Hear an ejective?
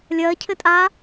yes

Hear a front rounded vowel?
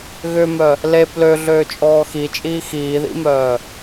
yes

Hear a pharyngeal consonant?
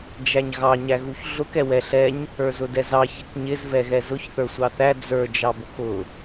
no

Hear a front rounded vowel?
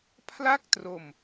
no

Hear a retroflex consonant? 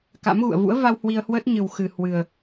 no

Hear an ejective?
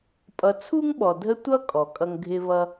yes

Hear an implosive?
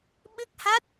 yes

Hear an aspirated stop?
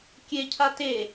yes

